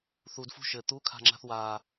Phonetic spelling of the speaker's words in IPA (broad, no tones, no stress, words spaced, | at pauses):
θudfṳ ʃɘ t̪ukʰa̤ŋ͡ǁa̤θ wa